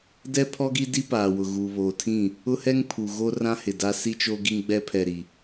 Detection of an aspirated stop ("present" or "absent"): present